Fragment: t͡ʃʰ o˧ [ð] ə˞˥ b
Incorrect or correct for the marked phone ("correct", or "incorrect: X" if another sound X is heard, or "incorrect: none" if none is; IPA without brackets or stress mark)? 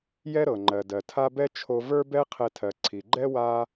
incorrect: v